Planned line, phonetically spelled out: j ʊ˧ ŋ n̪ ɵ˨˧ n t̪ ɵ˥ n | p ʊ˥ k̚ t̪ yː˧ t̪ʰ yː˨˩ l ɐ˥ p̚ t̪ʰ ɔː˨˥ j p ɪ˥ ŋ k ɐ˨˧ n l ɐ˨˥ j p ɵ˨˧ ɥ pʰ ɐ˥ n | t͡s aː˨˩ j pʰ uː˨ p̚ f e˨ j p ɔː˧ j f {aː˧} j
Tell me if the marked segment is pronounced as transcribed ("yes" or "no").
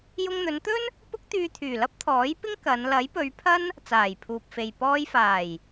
no